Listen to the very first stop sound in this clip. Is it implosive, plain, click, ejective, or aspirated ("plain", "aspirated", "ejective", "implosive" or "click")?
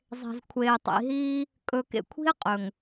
aspirated